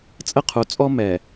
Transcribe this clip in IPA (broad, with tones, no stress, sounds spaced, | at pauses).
t͡sʼ ə˦˨ qʰ u˨ t͡sʼ ɔ˦ m ɛ˨